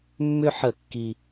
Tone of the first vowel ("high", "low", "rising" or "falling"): falling